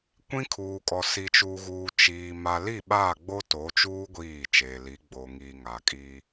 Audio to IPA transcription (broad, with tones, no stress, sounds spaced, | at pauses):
kʷ ĩ˦ kʰ uː˨ kʼ ɔ˨ s i˨ t͡ʃ uː˨ ɣ uː˨ t͡ʃ iː˨ m a˨ l i˦˨ ɓ aː˦˨ ɡ͡b o˦ t o˨˦ t͡ʃ uː˦ ɡʷ iː˦˨ t͡ʃ eː˨ l i˨˦ ɡ͡b o˨ ŋ i˨ ŋ a˨ kʼ iː˦